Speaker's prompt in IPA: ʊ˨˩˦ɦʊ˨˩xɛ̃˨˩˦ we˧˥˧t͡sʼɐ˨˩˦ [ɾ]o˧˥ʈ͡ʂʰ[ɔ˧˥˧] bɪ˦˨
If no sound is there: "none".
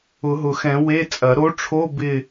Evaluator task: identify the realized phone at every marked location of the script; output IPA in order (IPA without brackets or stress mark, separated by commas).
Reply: ɾ, o˧˥˧